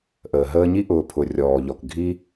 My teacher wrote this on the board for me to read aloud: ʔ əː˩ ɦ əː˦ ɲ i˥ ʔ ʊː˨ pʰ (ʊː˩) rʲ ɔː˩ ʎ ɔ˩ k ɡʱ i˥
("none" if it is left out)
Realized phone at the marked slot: ʊ˩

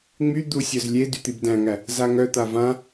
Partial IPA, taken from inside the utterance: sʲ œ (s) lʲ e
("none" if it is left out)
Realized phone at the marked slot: z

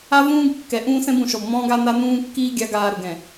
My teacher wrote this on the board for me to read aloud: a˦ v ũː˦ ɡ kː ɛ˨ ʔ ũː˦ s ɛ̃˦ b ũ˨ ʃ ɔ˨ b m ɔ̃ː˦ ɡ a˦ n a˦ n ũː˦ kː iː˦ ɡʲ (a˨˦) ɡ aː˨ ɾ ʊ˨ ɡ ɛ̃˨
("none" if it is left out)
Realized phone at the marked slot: a˨˦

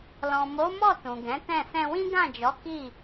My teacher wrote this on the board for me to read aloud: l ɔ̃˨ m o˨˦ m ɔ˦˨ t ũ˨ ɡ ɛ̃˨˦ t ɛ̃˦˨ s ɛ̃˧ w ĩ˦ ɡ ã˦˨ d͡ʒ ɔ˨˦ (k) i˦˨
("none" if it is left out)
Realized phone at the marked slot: k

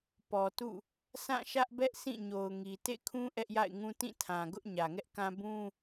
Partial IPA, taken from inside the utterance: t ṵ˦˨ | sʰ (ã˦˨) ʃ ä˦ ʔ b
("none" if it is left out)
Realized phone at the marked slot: ã˦˨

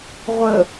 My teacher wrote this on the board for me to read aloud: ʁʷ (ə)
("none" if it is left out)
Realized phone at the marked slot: ə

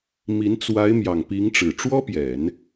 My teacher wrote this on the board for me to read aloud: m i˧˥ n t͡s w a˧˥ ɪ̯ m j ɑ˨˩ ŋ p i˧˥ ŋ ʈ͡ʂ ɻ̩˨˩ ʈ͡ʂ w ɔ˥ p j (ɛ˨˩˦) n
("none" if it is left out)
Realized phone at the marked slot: ɛ˨˩˦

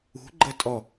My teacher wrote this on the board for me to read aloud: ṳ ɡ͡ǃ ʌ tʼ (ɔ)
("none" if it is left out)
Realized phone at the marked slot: ɔ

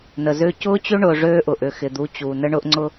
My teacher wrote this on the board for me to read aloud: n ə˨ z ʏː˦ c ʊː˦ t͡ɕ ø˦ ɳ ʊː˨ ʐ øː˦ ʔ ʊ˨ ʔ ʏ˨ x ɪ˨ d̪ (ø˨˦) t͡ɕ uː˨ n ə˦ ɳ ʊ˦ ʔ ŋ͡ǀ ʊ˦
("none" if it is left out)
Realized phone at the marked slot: u˨˦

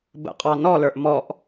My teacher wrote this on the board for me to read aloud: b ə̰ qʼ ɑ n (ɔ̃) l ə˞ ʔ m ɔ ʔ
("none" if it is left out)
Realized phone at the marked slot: ɔ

